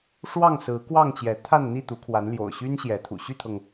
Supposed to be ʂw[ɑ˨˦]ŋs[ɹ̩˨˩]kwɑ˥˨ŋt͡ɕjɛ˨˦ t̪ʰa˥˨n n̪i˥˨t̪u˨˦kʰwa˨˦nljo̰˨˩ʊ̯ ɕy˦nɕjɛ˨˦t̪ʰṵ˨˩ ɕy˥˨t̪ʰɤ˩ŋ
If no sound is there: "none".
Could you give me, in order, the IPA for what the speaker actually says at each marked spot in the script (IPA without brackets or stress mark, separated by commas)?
ɑ˥˨, ɹ̩˨˦